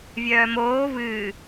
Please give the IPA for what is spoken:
vʲ œː m oː v ɨː

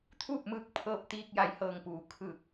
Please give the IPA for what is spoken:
t̪ʰ uː˥˨ p̚ m ɯː˧˥ k̚ pʰ ɤː˧ p̚ t̪ iː˧ k̚ j a˩˧ j h ɤː˩ ŋ p uː˩˧ kʰ ɯː˧˩ k̚

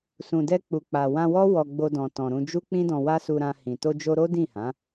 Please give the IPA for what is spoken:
s ũ˨ d ɛ˧ k͡p u˨ k͡p a˨ w ã˧ w ɔ˦ w ɔ˧ ɡ͡b o˧ d ɔ̃˨ t ɔ̃˨ ɾ ũ˧ d͡ʒ u˦ k͡p ĩ˦ d ɔ̃˧ w a˦ s u˧ ɾ ã˧ h ĩ˨ t o˧ d͡ʒ o˧ ɾ o˦ d ĩ˦˨ h ã˨˦

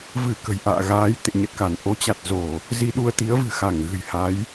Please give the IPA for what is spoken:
v ɨ˧˩ k ə̤˨˩ j ʔ a̰ː˧˨ ɣ aː˨˦ j t̪ ḛ˧˨ ɲ ə˨˩ t̚ k a˧˩ n ʔ o˨˦ t͡ɕ a˨˩ t̚ z o˧˩˨ | z i˧ ɗ u˧ ə̯ t̪ i˨˦ ə̯ v ɨ̤˨˩ x a˧˩ ŋ ɣ ɨ̤˨˩ j h a˨˦ j

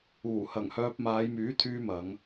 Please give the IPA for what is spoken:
uː˨˩ h ɐ˨˩ ŋ h œː˧ p̚ m aː˨˧ j m yː˨˥ t̪ʰ yː˧ m ɐ˨˧ ŋ

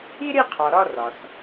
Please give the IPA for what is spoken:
i˥ ɾ i˥˧ qʰ ɒ˩ ɾ ɒ˥˧ r ɒ˩ s

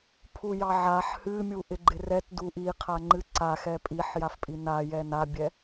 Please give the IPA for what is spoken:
pʰ u j ɑ ʕ a ħ h ɨ mʲ u ʔ ɪ ɡ͡ǃ ɪ r ɛ t d u ʔ i qʰ a ŋ͡ǃ ɨ ǀ a x ɛ pʼ i ħ j a f pʼ i n a j ɛ n a bʲ ɛ

